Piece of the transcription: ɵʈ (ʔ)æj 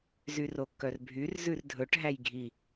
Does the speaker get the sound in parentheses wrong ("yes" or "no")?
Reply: yes